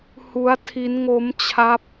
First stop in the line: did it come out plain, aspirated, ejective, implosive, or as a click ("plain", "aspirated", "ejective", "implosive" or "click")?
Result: aspirated